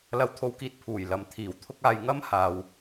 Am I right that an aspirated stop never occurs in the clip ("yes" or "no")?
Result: no